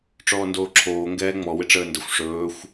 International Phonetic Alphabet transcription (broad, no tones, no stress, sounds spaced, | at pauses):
ʈ͡ʂ ɔː n d oː ǁʰ oː ŋ ɡ ɛː ŋ͡m ɔ w ɪ ʈ͡ʂ əː n d ə xʷ ʂ ɵː xʷ